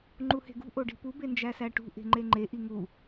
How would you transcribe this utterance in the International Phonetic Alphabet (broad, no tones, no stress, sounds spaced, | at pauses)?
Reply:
ŋ͡ǃ u h e̤ ɡ ṳ ʔ o ɖ i̤ p u b e n d͡ʒ æ s æ ʈ ṳ ʔ e̤ ŋ͡ǃ e ŋ͡ǃ e ʔ i ŋ u